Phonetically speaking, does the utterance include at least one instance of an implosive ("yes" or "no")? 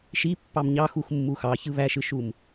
no